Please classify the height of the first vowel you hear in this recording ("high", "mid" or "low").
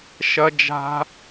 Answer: low